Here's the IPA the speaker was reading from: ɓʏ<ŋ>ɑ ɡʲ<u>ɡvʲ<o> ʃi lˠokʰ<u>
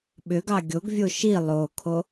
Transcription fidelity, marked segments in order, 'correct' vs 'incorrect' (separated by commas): incorrect, incorrect, correct, incorrect